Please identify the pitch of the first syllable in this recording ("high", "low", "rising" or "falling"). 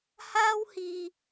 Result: high